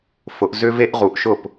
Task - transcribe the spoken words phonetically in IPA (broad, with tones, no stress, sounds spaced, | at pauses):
f ʊ˩˧ ʔ z ʏ˦ v e˦ ʔ ʁ u˩ ʔ ʃ ʊ˥˩ p